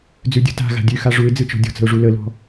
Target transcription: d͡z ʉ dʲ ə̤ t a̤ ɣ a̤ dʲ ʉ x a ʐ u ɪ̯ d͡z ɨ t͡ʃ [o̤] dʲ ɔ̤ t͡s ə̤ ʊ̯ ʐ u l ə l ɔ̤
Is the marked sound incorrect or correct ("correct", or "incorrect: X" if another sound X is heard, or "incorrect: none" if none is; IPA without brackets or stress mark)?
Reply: incorrect: ɔ̤